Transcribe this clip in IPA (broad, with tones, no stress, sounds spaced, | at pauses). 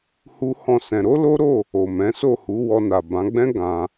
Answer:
h u˦ h ɔ̃˦˨ s ɛ̃˧ ɾ o˦ l o˦ ɾ o˦˨ | o˨ m ɛ̃˨˦ s o˦˨ h u˨˦ w ɔ˧ n a˨ b ã˨˦ ɡ͡b ɛ̃˦ ɡ ã˧